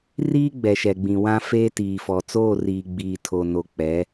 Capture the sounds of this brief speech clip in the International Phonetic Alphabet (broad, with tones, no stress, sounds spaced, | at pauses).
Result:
r iː˦ ɡ͡b ɛ˨ ʃ ɛ˨ ɡ͡b ĩ˨ w ã˦ f eː˦ t iː˨ f ɔ˨ t͡s oː˦˨ r iː˨ ɡ͡b iː˨ tʰ o˨ n o˨ k͡p ɛ˨˦